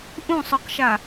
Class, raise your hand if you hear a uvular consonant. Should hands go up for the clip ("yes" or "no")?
yes